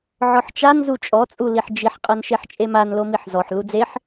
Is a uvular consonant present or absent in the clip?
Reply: present